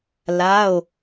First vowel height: low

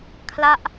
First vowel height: low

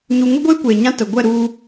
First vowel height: high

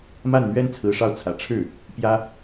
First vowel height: low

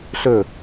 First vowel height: mid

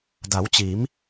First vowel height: low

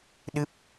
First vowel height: high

